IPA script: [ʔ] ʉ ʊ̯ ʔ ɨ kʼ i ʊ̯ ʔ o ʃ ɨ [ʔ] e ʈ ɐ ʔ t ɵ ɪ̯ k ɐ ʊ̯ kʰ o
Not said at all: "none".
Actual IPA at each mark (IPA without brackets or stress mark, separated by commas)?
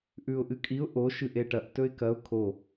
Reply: ʔ, ʔ